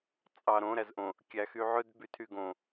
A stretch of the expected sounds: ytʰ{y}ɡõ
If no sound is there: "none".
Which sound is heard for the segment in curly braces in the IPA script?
y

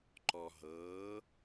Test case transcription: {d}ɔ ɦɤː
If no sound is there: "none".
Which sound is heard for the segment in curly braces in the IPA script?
ǃ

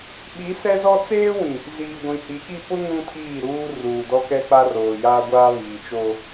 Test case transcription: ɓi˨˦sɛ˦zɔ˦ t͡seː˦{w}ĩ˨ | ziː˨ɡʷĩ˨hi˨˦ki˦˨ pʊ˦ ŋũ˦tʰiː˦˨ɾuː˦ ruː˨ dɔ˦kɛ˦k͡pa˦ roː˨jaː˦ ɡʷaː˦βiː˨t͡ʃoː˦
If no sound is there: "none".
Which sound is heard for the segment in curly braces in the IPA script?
w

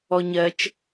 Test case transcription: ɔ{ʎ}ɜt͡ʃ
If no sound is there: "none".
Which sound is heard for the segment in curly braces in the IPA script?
ɲ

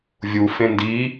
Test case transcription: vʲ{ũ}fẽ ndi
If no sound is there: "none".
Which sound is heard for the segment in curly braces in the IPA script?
u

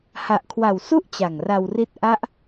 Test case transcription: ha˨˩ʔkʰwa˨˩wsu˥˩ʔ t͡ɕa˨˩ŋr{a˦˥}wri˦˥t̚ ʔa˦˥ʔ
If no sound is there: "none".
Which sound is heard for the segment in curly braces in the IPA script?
a˧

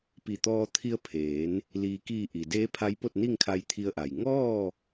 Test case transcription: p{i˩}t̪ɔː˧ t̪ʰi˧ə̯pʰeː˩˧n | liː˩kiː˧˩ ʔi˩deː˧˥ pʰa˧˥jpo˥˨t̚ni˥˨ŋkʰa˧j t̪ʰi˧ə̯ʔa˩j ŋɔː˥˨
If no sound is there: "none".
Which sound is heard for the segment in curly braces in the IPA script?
i˧˩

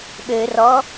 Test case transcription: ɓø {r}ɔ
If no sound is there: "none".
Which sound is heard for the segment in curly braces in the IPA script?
r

